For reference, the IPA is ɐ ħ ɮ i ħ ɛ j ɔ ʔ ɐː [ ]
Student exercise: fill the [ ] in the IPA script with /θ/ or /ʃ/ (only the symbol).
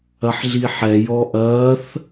θ